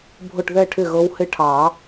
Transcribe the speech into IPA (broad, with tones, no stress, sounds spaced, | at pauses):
bʱ ʊ˥˩ ʈ ð ɛ˥˩ ʈʰ ɪ˥˩ ɣ ɤ˧˥ w h ɪ˧˥ ʈʰ ɑ˨˩˦